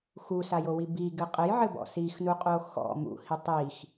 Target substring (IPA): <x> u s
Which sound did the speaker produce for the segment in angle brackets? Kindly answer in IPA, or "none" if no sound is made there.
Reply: x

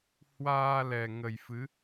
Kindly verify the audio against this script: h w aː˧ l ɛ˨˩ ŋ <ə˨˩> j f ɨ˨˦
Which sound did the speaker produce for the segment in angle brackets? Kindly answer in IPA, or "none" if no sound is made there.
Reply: ə˨˩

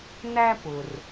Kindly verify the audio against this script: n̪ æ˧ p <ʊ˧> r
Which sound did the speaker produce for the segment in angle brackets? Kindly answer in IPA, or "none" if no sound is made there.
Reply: ʊ˩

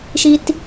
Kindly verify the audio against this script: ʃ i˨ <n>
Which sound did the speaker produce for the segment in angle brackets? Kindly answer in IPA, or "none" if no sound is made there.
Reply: t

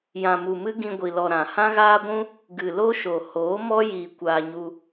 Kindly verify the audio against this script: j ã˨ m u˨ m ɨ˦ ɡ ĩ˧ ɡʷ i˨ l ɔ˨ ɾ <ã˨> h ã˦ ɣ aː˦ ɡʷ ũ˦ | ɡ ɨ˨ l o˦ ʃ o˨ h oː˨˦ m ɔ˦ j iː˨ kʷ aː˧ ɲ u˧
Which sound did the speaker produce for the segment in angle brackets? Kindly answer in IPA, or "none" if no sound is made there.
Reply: ã˨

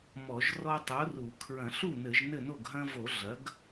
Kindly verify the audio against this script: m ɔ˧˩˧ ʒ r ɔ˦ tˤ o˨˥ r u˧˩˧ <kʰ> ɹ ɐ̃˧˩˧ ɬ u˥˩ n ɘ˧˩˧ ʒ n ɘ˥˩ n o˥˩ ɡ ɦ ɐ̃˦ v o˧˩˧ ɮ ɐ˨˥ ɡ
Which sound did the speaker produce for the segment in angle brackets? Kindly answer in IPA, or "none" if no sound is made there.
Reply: kʰ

